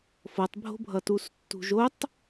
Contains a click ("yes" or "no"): no